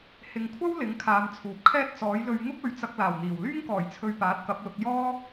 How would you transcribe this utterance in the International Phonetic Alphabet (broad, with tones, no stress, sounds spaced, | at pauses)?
h ɪ˨ ŋ kʷʰ ɐ˥ w l ɪ˨˥ ŋ kʰ aː˨˧ m t͡sʰ uː˨ p̚ kʰ ɛː˥ t̚ t͡s ɔː˨˥ j l ɵ˧ ɥ ŋ ʊ˥ k̚ ɵ˨˧ ɥ t͡s ɐ˧ k̚ l aː˨˩ w n̪ iː˨˩ w l yː˥ ŋ k ɔː˨˩ j t͡sʰ ɵ˨ ɥ p aː˨˥ t̚ k ɐ˨˥ p̚ l ʊ˨˥ k̚ j ɔː˥